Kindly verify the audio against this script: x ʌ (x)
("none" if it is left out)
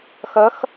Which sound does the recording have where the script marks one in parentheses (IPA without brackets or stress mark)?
x